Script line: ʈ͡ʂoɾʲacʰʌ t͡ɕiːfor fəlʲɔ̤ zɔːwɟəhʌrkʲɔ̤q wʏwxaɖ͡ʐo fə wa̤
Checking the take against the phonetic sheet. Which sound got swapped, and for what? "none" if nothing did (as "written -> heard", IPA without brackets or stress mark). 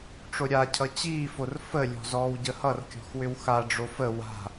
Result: q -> x